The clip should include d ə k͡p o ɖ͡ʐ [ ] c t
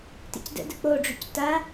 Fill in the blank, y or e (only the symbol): y